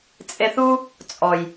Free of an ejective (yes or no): no